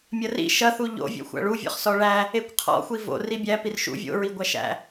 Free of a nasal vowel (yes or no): yes